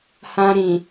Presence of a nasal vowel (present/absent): present